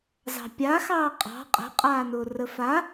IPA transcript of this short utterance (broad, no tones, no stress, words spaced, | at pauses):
zɑ̤pʲaxɑː qʼɑ̤ qʼə̤qʼaːnʊː rəfa